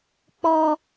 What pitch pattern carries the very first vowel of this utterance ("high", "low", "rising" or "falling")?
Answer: high